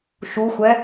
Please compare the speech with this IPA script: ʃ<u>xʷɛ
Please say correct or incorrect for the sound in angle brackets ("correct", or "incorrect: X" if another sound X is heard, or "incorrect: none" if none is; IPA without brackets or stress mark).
correct